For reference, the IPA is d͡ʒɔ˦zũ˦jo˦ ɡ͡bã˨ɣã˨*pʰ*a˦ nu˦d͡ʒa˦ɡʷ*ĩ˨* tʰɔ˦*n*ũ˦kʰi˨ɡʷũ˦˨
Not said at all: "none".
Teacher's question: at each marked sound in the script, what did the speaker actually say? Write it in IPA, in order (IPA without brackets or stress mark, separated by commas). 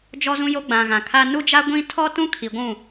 kʰ, ĩ˦, t